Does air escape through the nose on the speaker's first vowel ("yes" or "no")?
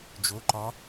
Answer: no